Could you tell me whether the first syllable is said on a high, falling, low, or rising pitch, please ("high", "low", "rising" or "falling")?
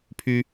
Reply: high